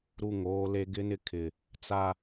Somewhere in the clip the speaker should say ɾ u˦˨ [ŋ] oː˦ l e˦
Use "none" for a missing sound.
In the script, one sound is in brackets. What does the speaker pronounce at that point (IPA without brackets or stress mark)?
ŋ